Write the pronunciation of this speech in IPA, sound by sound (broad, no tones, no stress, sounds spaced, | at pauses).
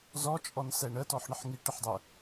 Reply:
z ɔ t͡ʃʼ ɔ n s ɛ ɳ ə t ɔ ħ ɳ ə ħ ŋ i ʈ ə ħ dˤ ə